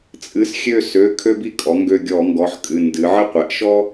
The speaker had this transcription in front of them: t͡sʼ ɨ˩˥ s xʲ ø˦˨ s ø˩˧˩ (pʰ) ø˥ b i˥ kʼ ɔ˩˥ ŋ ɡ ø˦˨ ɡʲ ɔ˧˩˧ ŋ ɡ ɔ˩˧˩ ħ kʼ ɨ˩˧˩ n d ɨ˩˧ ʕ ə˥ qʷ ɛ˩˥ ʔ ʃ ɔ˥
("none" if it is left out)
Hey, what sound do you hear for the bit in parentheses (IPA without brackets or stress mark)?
kʰ